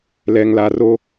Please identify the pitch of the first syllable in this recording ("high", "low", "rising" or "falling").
low